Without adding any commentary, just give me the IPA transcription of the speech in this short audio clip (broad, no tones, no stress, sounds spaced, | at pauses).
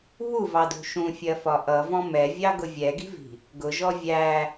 β u v ɑ d ṳ ʃ ũ fʲ ɜ f ɒ ʔ ʌ v ɔ̃ m ɛ vʲ ɑ ɡ ʊ vʲ ɛ ɡ i̤ v i̤ | ɡ ʊ ʒ ɔ vʲ æ